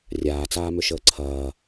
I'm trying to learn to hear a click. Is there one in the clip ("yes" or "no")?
yes